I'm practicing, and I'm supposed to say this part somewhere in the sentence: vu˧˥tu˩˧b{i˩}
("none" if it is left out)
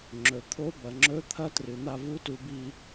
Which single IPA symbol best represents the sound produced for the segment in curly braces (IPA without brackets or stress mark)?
i˧